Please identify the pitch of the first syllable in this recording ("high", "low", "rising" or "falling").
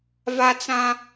high